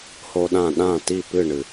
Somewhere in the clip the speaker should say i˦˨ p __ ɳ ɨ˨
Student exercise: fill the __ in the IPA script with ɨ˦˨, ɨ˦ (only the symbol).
ɨ˦˨